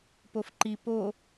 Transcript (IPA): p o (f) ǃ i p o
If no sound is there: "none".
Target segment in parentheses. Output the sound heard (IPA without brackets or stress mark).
f